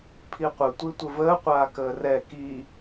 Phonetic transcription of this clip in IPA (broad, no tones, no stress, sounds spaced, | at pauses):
pʰ i qʷ ə tʷ i tʷ ə v əː qʷ aː k əː r ɛ k i